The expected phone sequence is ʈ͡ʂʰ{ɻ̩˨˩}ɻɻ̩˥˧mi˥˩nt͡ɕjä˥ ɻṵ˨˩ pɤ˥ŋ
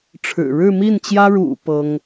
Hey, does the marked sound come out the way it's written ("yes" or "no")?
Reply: yes